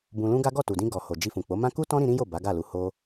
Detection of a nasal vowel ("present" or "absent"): present